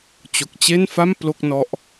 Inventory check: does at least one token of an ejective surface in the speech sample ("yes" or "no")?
no